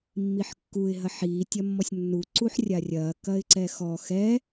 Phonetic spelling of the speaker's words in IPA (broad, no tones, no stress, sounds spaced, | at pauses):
mː i ħ kː u ɪ̯ ɦ ɐ ħ iː tʲ ɐ mː ɔ sʲ nː u ǀ u ħ rʲ a rʲ ɐː k ɐ ɪ̯ ǀ ɛ x ɔ x ɛ